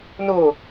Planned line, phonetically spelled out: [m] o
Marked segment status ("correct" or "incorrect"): incorrect